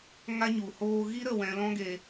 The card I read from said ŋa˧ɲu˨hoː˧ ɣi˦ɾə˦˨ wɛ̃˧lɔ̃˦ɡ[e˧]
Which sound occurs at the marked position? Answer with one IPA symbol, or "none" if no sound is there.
e˧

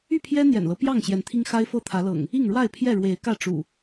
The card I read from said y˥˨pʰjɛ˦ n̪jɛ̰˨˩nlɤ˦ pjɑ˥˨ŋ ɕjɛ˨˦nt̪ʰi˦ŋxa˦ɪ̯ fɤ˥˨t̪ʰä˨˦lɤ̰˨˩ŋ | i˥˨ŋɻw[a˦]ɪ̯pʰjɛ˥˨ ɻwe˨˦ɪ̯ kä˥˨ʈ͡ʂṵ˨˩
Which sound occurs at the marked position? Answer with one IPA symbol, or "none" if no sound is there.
a˥˨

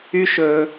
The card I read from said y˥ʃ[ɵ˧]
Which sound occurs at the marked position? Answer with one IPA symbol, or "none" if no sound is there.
ɵ˧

